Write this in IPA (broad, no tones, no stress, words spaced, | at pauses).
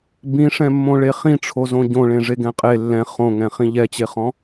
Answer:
bĩʂɛ̃mːõɭe χĩʈ͡ʂʰozõ ɟõɭẽʐe ɡɛ̃qʼe lːɛ̃ χõŋɛ̃ χĩʎɛt͡ɕeχɔ̃